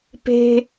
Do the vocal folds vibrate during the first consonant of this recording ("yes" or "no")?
no